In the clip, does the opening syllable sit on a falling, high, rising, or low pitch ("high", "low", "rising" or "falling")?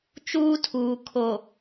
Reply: high